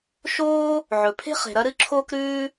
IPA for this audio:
ʃ oː˥ | ʕ ɵ˩ pʰ e̤˥ χ e̤˩ ɾ ɐ˥ ɾ ɨ˥ ǁʰ oː˥ k ɾ ʉː˥

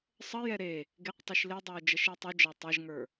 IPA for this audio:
sˤ ə j ɛ ɾ e | ɡ e q tˤ i ʃ l e dˤ ə˞ ʊ̯ d͡ʒ ɐ ʃ e tˤ u d͡ʒ ɑ tˤ ɐ ʒ ŋ ə˞

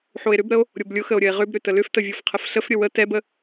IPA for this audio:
ħ o e̯ ɾ ʏ b ɾ ə o̯ | ɾʲ o b lʲ ʊ x ə o̯ ɾʲ ə e̯ ʁ ʏ b ɾ ʏ t ə l ʏ f t ə vʲ o f qʰ ə f ɬ ə f ɾʲ ə w ə t ɛ b ə

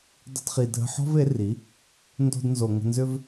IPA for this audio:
dˤ ə̤˧ d χ i˨ dʱ ə̤˧ ħ ɔ̤˦ v e˨˦ r i˨˦ | n d o̤˧ d n z o˨ ŋ ə̤˧ n z ʏ˦ v

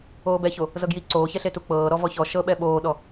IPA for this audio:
oː b ɛ ç o | z ɤ ɡ j i ǀ oː ç ɛ ɬ e t u k͡p ɤː ɾ ɔ v ɔ ç ɔ ʃ ɤ ɓ ɛ ɓ oː ɗ ɔ

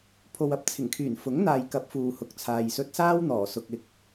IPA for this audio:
pʰ o˨ w ɐ˨ p̚ t͡sʰ ɪ˨˩ ŋ kʰ yː˨˩ n f ʊ˨˥ ŋ n̪ aː˨ j k ɐ˨˥ p̚ f uː˨ h ʊ˨ k̚ t͡sʰ aː˨ j s ɵ˧ t̚ s aː˥ w n̪ ɔː˨˩ s ʊ˨ k̚ ɪ˨ k̚

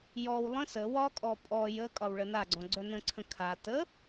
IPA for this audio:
j ɔ w lˠ ə̃ s ə w ɒ kʼ ɔ pʼ ɔ j ə kʼ ɒ w ɭ ə n a ɡ͡ǀ ɔ̃ ɡ͡ǀ œ n ə̃ ǀʰ ə̃ kʰ a t ə

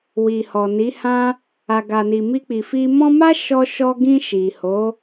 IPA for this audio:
w i˨ h ɔ˨ n i˨˦ h ã˦ | a˨ ɡ a˨ n i˨ m i˧ k͡p i˨ f i˧ m ɔ̃˦ m a˦ ʃ ɔ˧ ʃ ɔ˧ ɡ ĩ˧ ʃ i˨ h o˨˦

